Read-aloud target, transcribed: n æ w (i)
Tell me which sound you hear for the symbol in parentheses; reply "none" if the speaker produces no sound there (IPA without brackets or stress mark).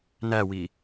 i